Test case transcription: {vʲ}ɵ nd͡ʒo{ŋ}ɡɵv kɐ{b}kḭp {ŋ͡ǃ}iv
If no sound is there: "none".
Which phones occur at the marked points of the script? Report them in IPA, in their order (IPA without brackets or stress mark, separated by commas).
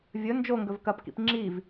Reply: vʲ, ŋ, p, ŋ͡ǁ